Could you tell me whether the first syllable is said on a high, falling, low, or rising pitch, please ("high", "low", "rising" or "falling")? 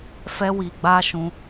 high